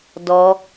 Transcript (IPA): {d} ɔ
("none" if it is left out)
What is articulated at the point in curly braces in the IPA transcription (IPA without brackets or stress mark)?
d